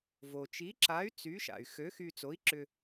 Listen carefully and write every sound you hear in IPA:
vo˩t͡ʃi˨˥ǁa˨˥y̯ t͡sy˨˥ʃa̰˩y̯ xø˨˥xy˧ t͡so˨˥i̯ǁʏ˧

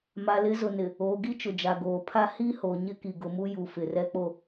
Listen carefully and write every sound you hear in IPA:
ma˨lɪ˨˦ zʊ˨nɪ˨ | oː˨ɡi˦t͡ʃʊ˨ d͡ʒa˨ɡoː˨pʰa˦ hi˦ho˨ ɲɪ˦ki˨ɡʊ˨mu˦ ju˨fɪ˨rɛ˦k͡po˦

